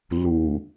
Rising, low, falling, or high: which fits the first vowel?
low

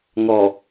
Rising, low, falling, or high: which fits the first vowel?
low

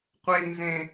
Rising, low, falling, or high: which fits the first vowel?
high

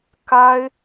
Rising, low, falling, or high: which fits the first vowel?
high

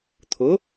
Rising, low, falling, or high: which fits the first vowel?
rising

